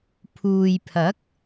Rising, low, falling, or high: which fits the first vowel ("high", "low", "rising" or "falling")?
low